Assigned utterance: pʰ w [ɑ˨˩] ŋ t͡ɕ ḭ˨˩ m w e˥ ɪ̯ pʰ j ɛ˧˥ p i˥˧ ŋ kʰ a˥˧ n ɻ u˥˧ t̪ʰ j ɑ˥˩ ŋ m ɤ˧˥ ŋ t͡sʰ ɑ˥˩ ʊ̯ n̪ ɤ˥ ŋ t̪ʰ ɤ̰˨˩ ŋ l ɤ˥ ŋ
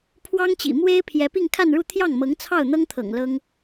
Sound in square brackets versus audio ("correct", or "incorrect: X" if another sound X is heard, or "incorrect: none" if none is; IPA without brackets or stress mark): incorrect: ɑ˥